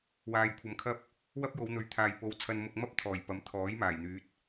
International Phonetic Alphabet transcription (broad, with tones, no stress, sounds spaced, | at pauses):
w aː˨ j kʷʰ ɐ˨˧ m kʰ ɐ˥ p̚ | w ɐ˥ p̚ j o˨˧ w n̪ ɵ˨˥ ɥ t̪ʰ aː˨ j p o˨ w t͡sʰ ɐ˧ n m ʊ˧ k̚ m ɐ˥ p̚ t̪ʰ ɔː˨˩ j p ɐ˨˥ m t̪ʰ ɔː˨˥ j m aː˨˩ j n̪ yː˨˥ t̚